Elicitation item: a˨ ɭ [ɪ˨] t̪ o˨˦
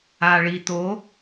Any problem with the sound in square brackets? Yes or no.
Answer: yes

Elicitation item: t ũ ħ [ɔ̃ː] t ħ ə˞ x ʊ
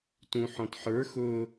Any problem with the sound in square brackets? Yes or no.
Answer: yes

